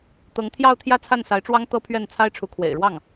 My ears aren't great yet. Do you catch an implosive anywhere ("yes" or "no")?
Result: no